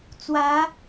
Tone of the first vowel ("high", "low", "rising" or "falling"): rising